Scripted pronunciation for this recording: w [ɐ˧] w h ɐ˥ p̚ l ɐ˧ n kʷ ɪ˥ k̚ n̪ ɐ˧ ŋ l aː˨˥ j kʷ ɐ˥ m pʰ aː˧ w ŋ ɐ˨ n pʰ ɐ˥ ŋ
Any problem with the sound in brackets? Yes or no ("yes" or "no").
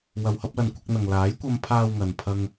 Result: no